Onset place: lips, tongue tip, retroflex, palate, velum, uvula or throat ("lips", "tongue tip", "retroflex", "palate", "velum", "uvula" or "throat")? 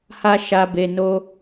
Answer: throat